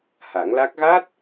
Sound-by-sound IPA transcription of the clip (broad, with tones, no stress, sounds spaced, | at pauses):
h a˨˩˦ ŋ l a˦˥ k̚ ɣ a˦˥ t̚